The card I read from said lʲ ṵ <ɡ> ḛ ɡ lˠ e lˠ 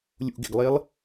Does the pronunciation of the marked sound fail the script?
no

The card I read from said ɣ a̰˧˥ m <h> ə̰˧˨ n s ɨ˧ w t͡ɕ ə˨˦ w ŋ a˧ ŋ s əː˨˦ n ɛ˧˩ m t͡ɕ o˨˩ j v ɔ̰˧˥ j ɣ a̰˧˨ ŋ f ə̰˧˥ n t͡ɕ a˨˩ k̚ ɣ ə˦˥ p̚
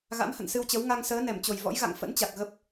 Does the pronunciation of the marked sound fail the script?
no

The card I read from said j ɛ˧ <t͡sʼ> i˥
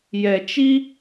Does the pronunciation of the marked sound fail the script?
yes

